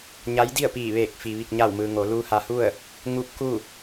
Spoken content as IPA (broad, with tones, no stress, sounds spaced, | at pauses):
ɲ a˧˥ j d i˥˨ ə̯ p iː˧˩ ʋ eː˧˩ k̚ f i˩ ʋ i˧˩ k̚ ɲ a˧˩ w m ɯː˩ ŋ o˩˧ l uː˧ h a˧ h u˥˨ ə̯ | ŋ u˧˥ p̚ k u˥˨